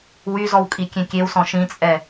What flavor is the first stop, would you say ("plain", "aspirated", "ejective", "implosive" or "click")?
ejective